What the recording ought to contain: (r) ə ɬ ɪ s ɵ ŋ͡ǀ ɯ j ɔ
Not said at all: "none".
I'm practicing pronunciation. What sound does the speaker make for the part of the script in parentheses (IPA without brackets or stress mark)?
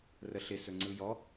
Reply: r